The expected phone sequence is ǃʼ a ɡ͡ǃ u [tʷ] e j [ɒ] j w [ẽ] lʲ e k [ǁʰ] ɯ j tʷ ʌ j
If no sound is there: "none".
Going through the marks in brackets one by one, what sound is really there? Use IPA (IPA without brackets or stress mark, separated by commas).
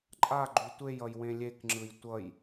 tʷ, ʌ, ẽ, ŋ͡ǁ